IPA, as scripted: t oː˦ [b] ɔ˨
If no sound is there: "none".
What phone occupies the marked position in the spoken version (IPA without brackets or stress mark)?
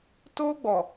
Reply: ɡ͡b